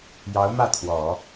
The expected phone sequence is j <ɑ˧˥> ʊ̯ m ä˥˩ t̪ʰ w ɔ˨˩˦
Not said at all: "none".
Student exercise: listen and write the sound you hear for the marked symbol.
ɑ˧˥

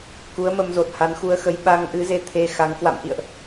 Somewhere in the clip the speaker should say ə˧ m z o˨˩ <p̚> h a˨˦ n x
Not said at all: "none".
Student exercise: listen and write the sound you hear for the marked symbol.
t̚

